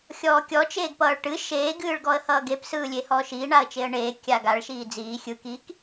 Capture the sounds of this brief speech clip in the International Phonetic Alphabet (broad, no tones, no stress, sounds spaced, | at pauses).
xʲ ɔː kʲ ɔ t͡ʃ eː ɡ p ʌː ɭ ʈ ɨ ʃ eː ɡ ɨː ɭ ɡ ɔ ə̯ h ʌː ɡ e p s ɯː lʲ e h ɔː ʃ iː ɳ a ə̯ t͡ʃ e ə̯ ɳ eː kʲ a ɡ a ɭ ʃ iː d͡z iː xʲ ɯ k i k